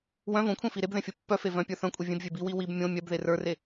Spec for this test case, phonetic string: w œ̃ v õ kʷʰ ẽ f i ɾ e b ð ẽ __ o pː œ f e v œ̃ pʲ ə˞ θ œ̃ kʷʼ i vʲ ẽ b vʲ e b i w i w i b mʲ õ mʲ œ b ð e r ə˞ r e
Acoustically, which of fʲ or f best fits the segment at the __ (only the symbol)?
fʲ